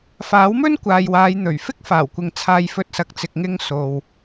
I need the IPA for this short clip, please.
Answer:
faː˨˥wmɵ˥nkʷaː˨j waː˨˧j n̪ɵ˨˩ɥfɪ˥k̚faː˨˩wkʷɪ˨ŋ t͡sʰaː˧jfɵ˧t̚sɐ˨k̚ t͡sɪ˨k̚ŋɪ˧ŋ so˨w

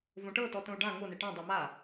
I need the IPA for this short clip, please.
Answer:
võʈɤ tɔtõu̯ɖã ŋone ʈɔ̃ dˤoma

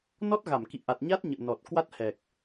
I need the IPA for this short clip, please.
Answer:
nɔ˦˥t̚ɣa˧˩m kḭ˧˨ ʔa˨˩t̚ ɲa˦˥t̚ɲə̰ː˧˨nɔ˨˩t̚ kwa˦˥t̚hɛ˨˩k̚

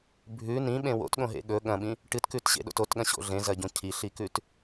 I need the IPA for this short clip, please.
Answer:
bʱʉ nĩɓẽ wo̰tɠõɦḛ ɠɵ ɠɐ̃ɓĩ | ʈɨtkʉtɕḛɗo̰t otɠɐ̃ɕo̰ ɮẽzɐɟõ cʰiɬikʉt

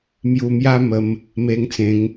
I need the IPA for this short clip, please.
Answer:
mju˧mja˦ mə˧m | me˧ŋt͡sẽ˨˦ŋ

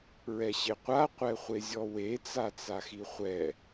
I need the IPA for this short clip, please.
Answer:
ɹɛɕeqʷa qʷɛχʷezʲɔwe t͡sat͡saxiχʷɛ

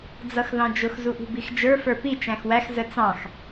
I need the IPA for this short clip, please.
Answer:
d͡zʌxðɑ̃d͡ʒʊx zuʔṳbixd͡ʒə˞ fə˞pi t͡ʃæ̃xwæx zət͡sɑ̃x

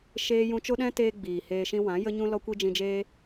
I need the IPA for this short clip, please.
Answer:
ʃeː˦ jũ˧t͡ʃo˦ɗɛ̃˦teː˧ ɡ͡biː˨heː˧ʃĩ˦ wã˨˦jə˦ɲũ˦ lɔ˦kʷi˦d͡ʒĩ˧d͡ʒeː˦

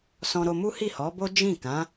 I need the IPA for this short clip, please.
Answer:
sɔ̃˧ɾo˧mu˦ hi˦˨hɔ˨˦bo˦ d͡ʒĩ˦˨ kã˨˦

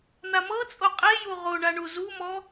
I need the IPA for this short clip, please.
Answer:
n̪amɤt͡sʼo qʼeju ʁoɳa ɳuzumɔ

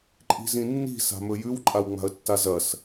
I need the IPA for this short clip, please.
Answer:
ǃʼi̤zĩnːi̤ sa̤mɵjʉw ǃʼawŋ͡ma̤ə̯tːazɐs

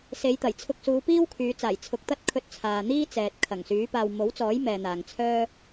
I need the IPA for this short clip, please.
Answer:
se˨˧jt̪ɐ˨˩j t͡sʰʊ˧k̚suː˨˧piː˥w kʰyː˨˧ t͡saː˨˩j t͡sʰʊ˨˥k̚t̪ɐ˥t̚ kʰɵ˧t̚t͡sʰaː˨n̪iː˥ t͡sɛː˨t̚kʰɐ˨˩ŋ syː˨˥paː˧w mo˨˥wt͡sɔː˨˥jmɛː˨ n̪aː˨ŋt͡sʰœː˥

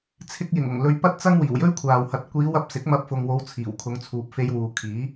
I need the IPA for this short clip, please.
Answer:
t͡sʰɪ˧k̚jɪ˨˩ŋ ʊ˨˩ŋlɵ˧ɥpɐ˥t̚t͡sɐ˥ŋ wiː˨˩wjɵ˥ɥkʷʰaː˨whɐ˨˥t̚ kʷiː˨˧wɐ˧p̚ sɪ˨˥k̚ mɐ˧p̚fʊ˨ŋwo˨˧w t͡sʰiː˨˩wkʰʊ˨˧ŋt͡sʰuː˨p̚ fe˧jwuː˨kʰiː˨˥

